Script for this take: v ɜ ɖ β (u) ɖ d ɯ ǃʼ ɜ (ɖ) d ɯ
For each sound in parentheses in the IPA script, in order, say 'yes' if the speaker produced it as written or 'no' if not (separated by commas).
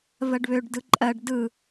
no, yes